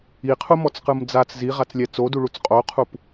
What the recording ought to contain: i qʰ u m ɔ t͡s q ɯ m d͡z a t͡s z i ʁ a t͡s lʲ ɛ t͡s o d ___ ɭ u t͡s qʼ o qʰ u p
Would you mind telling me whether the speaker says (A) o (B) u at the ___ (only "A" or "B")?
B